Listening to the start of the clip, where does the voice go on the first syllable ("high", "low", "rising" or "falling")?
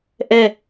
falling